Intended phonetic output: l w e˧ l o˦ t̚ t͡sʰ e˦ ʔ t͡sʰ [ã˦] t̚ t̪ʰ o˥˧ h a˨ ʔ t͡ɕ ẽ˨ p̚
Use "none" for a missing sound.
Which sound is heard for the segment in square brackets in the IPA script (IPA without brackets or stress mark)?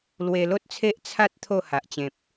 a˦